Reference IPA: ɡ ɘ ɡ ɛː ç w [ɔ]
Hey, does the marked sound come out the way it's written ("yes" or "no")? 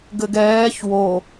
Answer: no